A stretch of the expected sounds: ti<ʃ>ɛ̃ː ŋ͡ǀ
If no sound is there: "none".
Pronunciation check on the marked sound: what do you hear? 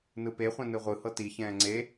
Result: ç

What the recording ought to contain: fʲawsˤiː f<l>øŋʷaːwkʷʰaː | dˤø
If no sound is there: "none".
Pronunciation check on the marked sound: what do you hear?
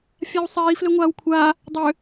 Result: l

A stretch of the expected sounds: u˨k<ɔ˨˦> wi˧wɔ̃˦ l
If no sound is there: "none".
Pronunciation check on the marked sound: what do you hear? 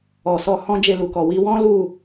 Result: ɔ˨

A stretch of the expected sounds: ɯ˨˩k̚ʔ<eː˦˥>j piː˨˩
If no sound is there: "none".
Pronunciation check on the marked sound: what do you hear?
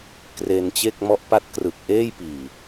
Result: eː˥˩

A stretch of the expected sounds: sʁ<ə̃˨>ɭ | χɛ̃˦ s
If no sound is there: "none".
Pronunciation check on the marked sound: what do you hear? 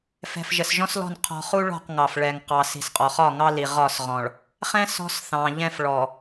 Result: ɔ̃˨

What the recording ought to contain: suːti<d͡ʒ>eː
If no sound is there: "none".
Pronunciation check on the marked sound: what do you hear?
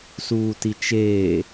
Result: t͡ʃ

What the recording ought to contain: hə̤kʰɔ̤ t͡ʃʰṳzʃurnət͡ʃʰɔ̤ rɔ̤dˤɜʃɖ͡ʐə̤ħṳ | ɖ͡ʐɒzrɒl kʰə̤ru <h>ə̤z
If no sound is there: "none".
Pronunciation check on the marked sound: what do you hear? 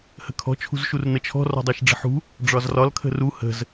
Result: h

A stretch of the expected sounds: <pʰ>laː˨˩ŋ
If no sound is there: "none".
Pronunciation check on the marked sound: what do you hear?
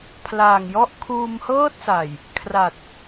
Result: pʰ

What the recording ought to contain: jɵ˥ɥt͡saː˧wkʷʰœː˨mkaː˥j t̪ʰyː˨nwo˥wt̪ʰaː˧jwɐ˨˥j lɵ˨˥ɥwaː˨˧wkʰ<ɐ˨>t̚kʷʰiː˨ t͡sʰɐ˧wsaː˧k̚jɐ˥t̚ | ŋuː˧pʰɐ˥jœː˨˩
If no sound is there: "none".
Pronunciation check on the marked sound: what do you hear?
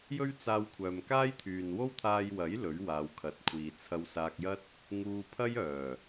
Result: ɐ˨˥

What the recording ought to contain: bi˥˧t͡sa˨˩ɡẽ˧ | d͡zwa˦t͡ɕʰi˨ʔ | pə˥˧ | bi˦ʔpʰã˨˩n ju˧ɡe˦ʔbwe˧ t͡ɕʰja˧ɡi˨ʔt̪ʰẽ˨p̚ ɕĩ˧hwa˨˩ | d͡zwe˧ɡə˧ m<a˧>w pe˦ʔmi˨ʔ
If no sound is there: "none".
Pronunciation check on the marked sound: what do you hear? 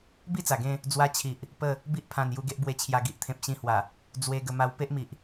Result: a˧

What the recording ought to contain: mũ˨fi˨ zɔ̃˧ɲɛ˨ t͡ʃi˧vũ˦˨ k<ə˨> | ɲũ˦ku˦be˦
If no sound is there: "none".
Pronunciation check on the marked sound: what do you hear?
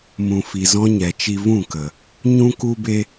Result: ə˨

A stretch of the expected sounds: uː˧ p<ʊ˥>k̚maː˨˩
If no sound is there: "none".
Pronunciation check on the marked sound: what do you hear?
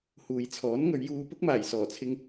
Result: ʊ˥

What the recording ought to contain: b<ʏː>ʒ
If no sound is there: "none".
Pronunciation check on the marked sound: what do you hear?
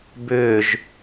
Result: ʏː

